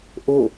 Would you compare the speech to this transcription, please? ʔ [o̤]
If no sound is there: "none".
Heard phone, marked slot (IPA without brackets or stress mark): o